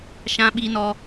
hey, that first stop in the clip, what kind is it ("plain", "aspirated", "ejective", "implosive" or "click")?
implosive